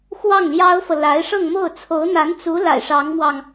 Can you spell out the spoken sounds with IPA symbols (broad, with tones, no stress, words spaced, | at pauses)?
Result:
xwɑ˥˩ŋljɑ˥ʊ̯fɤ˨ la˧˥ɪ̯ʂɤ˥˧ŋmo˥˩ʊ̯ t͡sʰo˧˥ʊ̯n̪a˧˥nt͡su˧˥ la̰˨˩ɪ̯ʂɑ˧˥ŋmwɑ˧ŋ